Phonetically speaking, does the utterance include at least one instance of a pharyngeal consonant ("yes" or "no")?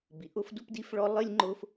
no